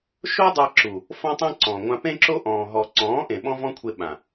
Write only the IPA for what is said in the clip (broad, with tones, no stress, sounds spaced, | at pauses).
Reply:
ʃ o˦ dˤ a˧ ǁ u˨ | f ɔ̃˦ tˤ ẽ˦ ǀ ɔ̃˨ ŋʷ ã˧ p ẽ˦ ǁ o˦ ʔ ɔ̃ː˨ ɦ ɔ˨ ǀ ɔ̃ː˨˦ ʔ ẽ˨ ɓ ɔ̃˦ v ɔ̃˦ kʷʰ e˧ ɓ ã˨